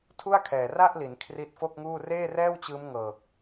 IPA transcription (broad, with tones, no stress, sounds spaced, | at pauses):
tʰ u˥˩ a̯ kʰ ɛː˨˩ r a˥˩ ʔ l i˩˦ n kʰ r i˦˥ t̚ f o˥˩ k̚ ŋ uː˥˩ r eː˥˩ r ɛː˥˩ w t͡ɕ ɯː˦˥ m ŋ ɤː˨˩ k̚